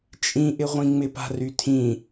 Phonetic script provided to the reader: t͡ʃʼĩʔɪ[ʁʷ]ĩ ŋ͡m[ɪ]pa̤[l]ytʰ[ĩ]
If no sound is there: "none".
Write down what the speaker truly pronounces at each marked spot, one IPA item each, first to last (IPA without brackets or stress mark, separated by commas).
ʁʷ, ɪ, r, ĩ